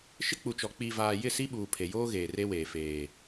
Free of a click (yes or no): yes